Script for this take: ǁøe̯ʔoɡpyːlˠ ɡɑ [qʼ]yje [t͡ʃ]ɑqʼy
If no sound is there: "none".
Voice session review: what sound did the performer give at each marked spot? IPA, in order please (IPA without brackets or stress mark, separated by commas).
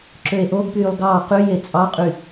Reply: q, t͡sʼ